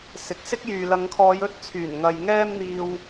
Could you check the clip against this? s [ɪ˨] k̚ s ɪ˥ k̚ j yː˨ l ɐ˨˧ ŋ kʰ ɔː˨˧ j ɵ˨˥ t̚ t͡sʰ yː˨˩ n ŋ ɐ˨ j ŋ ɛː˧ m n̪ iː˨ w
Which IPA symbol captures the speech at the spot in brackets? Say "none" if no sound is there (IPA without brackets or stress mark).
ɪ˨